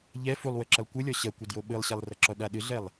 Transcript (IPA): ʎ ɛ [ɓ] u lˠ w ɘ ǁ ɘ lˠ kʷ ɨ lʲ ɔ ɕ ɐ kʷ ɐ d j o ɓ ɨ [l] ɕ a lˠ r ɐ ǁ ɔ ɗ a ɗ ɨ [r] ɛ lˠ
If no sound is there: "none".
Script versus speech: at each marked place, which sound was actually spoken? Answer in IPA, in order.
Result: f, lˠ, ɮ

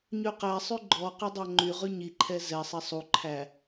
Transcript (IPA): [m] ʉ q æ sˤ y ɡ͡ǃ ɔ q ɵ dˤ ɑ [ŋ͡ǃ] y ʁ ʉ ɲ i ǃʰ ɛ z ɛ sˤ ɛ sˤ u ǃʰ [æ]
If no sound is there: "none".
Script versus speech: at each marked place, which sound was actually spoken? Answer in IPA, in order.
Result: ɲ, ŋ͡ǃ, æ

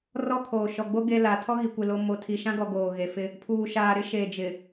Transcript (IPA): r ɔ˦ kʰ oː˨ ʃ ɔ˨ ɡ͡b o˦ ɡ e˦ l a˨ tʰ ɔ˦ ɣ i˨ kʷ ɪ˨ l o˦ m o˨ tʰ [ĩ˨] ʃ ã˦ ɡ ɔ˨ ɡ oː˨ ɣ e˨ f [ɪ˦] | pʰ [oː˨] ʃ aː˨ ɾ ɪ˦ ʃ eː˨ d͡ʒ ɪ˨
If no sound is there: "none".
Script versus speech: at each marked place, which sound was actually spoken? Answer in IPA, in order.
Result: i˨, ɪ˦, uː˨

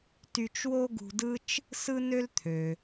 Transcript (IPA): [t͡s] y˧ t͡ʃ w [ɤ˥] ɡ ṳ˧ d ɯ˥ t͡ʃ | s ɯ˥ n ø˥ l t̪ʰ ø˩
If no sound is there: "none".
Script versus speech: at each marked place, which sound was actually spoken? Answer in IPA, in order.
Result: t, o˥

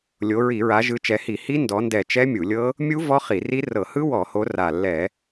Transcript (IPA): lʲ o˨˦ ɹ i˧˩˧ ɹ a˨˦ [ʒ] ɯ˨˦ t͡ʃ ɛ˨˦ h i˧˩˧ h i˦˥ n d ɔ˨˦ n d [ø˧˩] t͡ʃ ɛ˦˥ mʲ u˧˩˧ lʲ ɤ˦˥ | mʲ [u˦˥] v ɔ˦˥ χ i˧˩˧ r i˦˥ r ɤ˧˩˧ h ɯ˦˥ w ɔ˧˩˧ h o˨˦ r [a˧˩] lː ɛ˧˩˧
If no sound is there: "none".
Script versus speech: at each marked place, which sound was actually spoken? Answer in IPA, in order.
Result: ʒ, ɛ˧˩, u˦˥, a˧˩

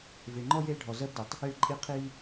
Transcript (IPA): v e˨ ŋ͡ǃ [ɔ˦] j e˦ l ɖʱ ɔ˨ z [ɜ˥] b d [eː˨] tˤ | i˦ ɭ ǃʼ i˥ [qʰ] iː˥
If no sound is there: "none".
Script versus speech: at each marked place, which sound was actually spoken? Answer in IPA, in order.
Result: ɔ˥, ɜ˥, e˨, qʰ

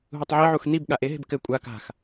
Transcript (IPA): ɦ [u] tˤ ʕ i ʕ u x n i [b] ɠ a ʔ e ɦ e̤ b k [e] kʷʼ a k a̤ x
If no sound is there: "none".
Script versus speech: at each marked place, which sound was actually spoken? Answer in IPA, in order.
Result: u, b, ɘ

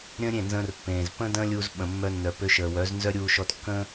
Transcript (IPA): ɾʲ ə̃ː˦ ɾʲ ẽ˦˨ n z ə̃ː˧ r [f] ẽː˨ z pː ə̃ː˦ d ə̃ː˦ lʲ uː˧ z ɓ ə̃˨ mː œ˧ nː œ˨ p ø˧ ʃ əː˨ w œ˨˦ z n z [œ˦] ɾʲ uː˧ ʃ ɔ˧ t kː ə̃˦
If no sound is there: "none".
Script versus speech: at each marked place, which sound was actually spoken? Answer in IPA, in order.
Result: pː, œ˦

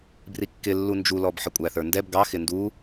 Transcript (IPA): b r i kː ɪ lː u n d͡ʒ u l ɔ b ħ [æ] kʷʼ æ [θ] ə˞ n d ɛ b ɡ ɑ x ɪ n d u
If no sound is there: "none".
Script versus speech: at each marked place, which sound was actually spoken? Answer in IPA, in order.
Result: ə, θ

